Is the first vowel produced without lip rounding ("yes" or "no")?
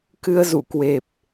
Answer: yes